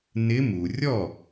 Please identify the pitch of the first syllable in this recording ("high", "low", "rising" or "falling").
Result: rising